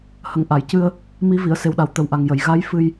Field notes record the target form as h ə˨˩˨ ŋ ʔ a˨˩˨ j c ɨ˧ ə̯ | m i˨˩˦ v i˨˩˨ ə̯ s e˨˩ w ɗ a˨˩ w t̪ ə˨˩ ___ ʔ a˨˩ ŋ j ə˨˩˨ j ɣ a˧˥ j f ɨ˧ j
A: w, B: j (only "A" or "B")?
A